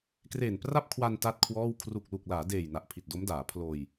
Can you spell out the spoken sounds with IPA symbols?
kreː˨˩npra˥˩p̚kʰwa˧n ta˥˩t̚kʰwɔː˥˩w kʰru˨˩k̚lu˨˩k̚ laː˩˦deː˨˩j na˨˩ʔpʰi˨˩t̚do˦˥mdaː˩˦ pʰloː˧j

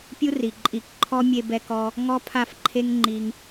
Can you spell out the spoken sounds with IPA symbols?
pʲu˦ri˨ ǃʼi˧k ǃʰɔ˦ mʲe˧bɛ˧kɔ˧ | ŋɔ˦pʰa˦˨fǃʰe˦ŋ ŋ͡ǃi˧ŋ

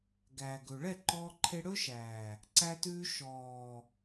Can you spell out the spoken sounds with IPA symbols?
ɡæː˨ɡɵ˨ ɭɛ˦˨ǃɔː˧ ǃʰe˧ɽɵː˦ ʃæː˨ | ǀæ˧tʉː˧ ʃɔː˨

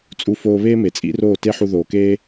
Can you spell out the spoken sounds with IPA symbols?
t͡sʼu˧foː˧βeː˦ me˨t͡sʼḭ˦roː˦˨ te˦ħu˧ ðoː˨keː˦

